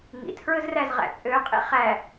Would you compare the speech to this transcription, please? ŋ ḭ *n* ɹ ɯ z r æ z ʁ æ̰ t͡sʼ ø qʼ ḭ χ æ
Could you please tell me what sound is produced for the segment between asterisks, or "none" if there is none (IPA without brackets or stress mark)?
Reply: tʰ